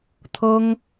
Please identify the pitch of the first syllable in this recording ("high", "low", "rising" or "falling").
high